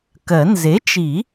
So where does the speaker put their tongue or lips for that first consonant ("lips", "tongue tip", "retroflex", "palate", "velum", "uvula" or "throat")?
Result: velum